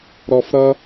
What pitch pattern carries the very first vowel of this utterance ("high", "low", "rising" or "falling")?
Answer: low